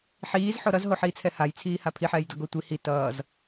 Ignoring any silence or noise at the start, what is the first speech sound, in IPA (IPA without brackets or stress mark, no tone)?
ħ